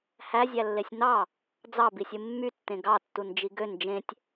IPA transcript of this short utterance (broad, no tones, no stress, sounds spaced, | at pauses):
h æ zʲ æ lː e sʲ n̪ ɑ | d͡z ɑ b i sʲ ɯ mː y tː ẽ ɡ ɑ tː u n d͡ʒ i ɡ ø n d͡ʒ ẽ tʲ